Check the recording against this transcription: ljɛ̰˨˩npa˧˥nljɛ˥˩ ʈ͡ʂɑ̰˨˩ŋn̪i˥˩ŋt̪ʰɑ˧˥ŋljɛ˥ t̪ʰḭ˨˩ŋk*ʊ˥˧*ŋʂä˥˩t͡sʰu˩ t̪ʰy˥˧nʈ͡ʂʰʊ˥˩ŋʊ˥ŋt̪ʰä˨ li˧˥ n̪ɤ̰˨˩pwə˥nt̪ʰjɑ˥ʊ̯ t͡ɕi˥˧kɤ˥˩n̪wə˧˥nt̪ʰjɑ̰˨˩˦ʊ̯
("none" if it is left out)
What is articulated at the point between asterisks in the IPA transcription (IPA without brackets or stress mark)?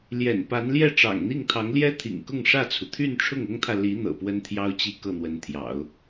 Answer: ʊ˥˧